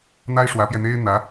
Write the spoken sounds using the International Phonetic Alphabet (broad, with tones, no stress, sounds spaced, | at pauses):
n̪ a˥ ɪ̯ ʂ w ä˧˥ p j ɛ˧ n̪ e˥ ɪ̯ n̪ ä˧˥